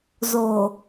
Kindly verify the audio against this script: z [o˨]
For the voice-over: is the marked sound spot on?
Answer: yes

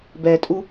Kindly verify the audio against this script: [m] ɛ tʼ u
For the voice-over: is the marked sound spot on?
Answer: no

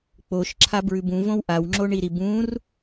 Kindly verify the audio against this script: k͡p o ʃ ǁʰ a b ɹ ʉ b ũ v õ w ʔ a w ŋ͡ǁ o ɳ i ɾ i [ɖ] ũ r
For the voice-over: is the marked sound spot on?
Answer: no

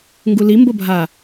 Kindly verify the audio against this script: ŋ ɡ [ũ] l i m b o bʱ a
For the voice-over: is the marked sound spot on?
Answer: no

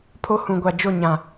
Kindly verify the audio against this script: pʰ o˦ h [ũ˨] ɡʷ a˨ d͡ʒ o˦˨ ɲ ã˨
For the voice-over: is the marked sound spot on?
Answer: yes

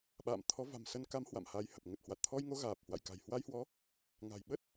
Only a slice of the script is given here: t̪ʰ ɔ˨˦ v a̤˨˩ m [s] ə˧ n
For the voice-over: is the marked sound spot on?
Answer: yes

